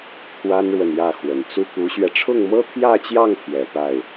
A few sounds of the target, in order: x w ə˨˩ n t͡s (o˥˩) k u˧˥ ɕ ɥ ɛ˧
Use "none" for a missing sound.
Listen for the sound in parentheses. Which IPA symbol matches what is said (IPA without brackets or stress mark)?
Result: u˥˩